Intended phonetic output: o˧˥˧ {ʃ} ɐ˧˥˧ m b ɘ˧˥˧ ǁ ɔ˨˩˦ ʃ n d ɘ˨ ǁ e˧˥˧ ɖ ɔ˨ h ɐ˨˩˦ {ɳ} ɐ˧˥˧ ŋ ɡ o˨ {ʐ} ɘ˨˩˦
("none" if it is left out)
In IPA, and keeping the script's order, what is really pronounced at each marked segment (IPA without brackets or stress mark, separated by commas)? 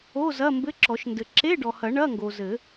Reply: z, ɳ, z